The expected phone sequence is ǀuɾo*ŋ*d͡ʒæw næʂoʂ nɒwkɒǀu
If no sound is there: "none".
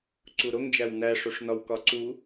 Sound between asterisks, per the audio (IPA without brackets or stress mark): ŋ